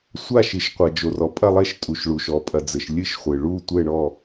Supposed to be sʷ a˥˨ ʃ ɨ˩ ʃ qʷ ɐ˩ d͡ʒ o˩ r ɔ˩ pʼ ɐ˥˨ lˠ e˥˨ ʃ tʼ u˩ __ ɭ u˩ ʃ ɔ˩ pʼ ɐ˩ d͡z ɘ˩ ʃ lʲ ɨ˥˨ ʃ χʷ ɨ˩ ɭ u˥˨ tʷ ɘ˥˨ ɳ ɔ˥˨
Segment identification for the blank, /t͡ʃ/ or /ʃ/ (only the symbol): ʃ